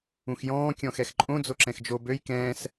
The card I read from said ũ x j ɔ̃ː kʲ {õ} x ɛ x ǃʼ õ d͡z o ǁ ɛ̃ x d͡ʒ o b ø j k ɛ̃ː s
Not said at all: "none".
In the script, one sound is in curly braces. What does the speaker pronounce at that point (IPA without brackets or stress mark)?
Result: ɔ̃